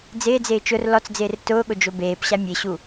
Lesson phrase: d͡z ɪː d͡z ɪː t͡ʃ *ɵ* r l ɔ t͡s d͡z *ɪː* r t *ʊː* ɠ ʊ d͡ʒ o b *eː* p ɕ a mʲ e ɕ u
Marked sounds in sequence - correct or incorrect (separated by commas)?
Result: incorrect, correct, correct, correct